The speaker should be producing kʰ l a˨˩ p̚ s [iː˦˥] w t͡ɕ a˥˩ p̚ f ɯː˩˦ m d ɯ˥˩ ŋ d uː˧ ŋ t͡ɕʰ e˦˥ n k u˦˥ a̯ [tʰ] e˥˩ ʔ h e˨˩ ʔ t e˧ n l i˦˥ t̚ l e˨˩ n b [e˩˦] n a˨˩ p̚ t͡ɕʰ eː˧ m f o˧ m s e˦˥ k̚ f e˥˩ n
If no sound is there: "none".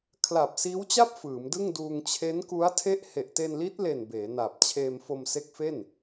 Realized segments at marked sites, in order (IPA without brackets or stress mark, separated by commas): iː˦˥, tʰ, eː˩˦